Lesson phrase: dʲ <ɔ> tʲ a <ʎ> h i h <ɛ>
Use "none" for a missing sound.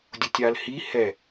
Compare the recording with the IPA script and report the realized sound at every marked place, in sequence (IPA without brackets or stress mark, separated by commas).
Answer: ʊ, l, ɛ